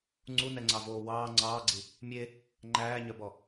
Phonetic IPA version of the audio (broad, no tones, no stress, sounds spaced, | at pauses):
ŋ͡ǀ u n ɛ ŋ͡ǀ ɑ v oː w ɑː ŋ͡ǀ ɑː ɡ͡ǀ i | mʲ e | ŋ͡ǃ æː ɲ œ b ɔ